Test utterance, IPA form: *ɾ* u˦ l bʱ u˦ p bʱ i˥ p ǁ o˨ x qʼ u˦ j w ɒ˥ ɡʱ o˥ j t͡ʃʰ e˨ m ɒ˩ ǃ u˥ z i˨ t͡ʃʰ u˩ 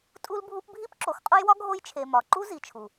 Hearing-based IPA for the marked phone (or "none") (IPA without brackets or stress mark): tʼ